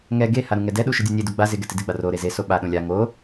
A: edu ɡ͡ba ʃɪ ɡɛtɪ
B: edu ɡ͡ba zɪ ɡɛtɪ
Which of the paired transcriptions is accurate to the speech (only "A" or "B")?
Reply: B